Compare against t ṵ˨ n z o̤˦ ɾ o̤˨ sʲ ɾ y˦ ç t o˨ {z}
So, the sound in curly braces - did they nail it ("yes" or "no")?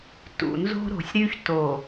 no